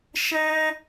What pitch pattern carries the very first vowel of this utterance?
high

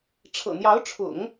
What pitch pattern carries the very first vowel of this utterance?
low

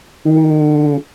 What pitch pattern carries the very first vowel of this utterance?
high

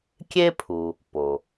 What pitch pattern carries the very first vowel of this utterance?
high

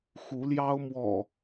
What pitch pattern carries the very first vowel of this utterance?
rising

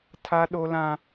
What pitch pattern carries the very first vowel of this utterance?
high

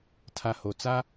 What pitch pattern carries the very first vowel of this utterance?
low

